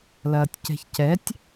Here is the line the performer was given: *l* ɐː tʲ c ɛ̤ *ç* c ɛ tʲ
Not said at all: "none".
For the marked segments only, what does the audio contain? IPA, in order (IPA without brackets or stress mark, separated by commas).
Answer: l, ç